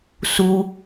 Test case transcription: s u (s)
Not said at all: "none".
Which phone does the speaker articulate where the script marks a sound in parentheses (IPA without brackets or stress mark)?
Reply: none